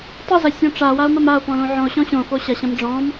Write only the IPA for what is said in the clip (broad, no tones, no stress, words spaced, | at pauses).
tˤɘzɐsʲɔ̃ ʈ͡ʂawao̯mɐm ao̯pɔ̃lõ ʕɔ̃o̯ɕɔ̃ ɕõfo ɕɐɕɐ̃m ɖ͡ʐɔ̃m